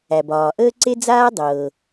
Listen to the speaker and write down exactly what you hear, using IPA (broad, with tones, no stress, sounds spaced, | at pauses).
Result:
æ˩ b ɒː˩ ʔ əː˥ ǀ e˥ d͡z aː˥ dˤ ɤː˩